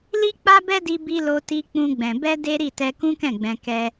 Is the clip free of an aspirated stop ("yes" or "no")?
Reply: yes